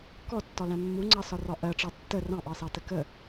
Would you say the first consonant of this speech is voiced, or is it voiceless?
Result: voiceless